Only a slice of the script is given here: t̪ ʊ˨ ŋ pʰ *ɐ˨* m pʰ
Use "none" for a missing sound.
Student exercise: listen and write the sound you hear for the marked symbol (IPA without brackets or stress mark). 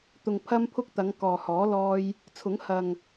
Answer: ɐ˧